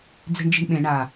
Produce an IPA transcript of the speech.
d͡ze̤ɳd͡ʒi̤ɳɓẽ ɳa

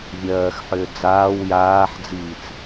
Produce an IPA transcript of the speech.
vʲɜːxħʏː d͡zaːw jaːħd͡ziːt͡s

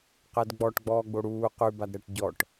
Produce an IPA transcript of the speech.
qɛdɡ͡bɔʈɡ͡bɔːɡ͡bo ɽuː qʉbadɾɛʈ ɟɔʈ

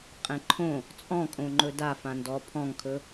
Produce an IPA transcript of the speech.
qʼɛ̃ǃʰõ | t͡sʼɔ̃kʼõŋ͡ǃɵ da fãndɔ pʰɔ̃ŋkʰɵ

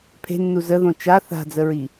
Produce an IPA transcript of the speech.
pʰe̤nːu zəðõ t͡ʃa θa̤d͡zəɹi

